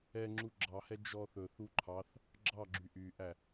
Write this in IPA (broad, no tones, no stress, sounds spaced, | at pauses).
ɛ ŋ͡ǁ u ɡ͡ǁ ɑ h ɛ d͡ʒ ɔ θ ɵ θ u ǃʰ ɑ θ | ɡ͡ǁ ɑ ɡ͡ǁ y ʔ y ʔ æ